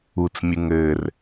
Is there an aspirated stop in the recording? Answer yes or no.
no